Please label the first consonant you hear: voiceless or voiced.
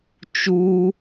voiceless